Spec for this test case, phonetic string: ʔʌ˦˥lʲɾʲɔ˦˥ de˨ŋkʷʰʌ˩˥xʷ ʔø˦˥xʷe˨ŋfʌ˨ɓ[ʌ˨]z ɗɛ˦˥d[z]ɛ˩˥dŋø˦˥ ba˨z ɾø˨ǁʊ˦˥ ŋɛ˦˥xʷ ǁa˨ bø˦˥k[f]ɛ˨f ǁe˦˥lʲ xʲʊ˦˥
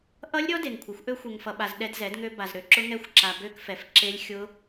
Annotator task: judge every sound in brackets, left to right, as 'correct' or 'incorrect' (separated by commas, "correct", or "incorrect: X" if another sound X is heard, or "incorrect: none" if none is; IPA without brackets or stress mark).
incorrect: a˨, correct, correct